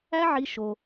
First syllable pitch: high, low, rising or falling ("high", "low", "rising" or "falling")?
high